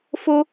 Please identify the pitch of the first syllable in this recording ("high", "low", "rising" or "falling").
high